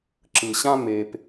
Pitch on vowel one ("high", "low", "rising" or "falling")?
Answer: low